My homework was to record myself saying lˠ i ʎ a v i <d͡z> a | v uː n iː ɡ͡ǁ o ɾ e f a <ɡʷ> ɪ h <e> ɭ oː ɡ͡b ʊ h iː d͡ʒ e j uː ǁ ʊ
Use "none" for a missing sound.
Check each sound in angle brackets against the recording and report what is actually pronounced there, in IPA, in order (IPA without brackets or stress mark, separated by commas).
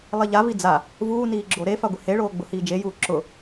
d͡z, ɡʷ, e